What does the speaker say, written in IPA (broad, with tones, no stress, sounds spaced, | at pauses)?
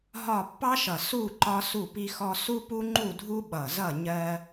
ɦ ɒ˦˨ pː ɑ˦ ʃ ʌ˨˩ s u˦˨ ǃ ɒ˦ s u˦˨ p i˦ x ɔ˦ s u˦ p u˦ ŋ͡ǃ u˦˨ dʱ u˦ ɓ ʌ˨˩ z ʌ˦˨ ɲ ɜ˦